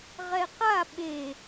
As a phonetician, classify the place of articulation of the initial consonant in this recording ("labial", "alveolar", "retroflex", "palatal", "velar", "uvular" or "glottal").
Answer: uvular